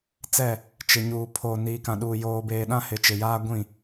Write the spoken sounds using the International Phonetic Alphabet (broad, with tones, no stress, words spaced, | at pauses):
t͡sɛ˦˨ | t͡ʃɪ˨ɲuː˨ pʰo˨niː˨kã˨ɗuː˨ joː˨beː˨ ɗã˦hɪ˨t͡ʃɪ˨jaː˦ ɡʷĩ˦˨